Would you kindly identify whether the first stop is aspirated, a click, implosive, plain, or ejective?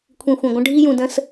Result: aspirated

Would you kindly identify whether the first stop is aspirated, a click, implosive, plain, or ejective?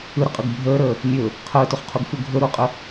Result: ejective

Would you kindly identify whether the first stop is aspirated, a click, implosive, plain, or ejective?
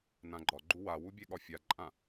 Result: click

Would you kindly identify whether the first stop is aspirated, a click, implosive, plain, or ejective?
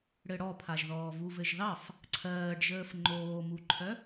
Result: aspirated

